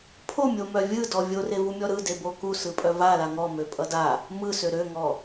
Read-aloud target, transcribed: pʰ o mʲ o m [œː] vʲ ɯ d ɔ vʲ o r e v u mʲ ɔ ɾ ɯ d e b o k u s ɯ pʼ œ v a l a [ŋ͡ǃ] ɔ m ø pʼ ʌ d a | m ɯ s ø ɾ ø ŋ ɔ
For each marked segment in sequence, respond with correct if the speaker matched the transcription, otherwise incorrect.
incorrect: œ, incorrect: ŋ

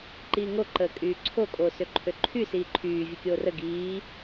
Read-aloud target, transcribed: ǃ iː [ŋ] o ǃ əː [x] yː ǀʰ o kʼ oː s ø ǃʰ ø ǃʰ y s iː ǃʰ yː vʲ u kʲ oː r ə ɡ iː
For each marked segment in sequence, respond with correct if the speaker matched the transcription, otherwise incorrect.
correct, incorrect: kʼ

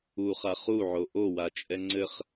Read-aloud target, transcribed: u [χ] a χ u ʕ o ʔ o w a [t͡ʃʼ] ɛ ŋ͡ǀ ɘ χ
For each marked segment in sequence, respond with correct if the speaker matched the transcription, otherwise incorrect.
correct, correct

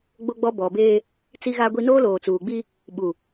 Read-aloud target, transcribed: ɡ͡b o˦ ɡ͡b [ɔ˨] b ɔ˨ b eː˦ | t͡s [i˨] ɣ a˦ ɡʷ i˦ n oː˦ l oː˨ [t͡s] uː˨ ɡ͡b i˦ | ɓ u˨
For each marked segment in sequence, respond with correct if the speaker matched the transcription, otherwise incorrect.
incorrect: ɔ˦, incorrect: i˦, correct

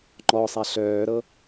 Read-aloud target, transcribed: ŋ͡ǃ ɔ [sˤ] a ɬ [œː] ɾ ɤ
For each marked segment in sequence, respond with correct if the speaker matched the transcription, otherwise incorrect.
correct, correct

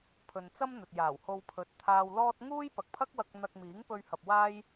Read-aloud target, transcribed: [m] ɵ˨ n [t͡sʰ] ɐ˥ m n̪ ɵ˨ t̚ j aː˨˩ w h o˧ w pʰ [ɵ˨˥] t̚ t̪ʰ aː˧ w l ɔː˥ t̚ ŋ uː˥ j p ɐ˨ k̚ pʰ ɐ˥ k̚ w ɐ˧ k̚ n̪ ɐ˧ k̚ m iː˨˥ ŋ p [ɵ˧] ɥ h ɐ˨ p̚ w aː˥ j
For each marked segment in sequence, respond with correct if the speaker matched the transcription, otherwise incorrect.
incorrect: pʰ, incorrect: t͡s, correct, correct

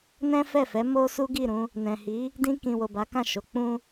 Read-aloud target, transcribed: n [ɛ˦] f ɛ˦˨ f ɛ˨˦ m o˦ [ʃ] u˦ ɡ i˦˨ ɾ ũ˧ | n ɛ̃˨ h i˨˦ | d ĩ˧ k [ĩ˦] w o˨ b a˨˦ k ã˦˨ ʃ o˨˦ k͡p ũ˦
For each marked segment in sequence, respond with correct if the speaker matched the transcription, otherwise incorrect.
incorrect: ɛ̃˦, incorrect: s, incorrect: ĩ˨

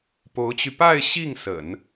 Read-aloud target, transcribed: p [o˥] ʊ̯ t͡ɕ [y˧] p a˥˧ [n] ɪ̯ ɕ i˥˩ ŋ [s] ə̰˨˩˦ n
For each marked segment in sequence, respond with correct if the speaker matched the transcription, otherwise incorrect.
incorrect: o˧˥, correct, incorrect: none, correct

